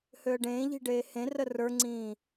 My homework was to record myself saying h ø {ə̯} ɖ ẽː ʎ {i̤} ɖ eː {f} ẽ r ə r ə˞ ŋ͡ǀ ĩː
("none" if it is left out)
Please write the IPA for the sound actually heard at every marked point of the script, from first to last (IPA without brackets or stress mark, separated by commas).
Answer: ə̯, i̤, h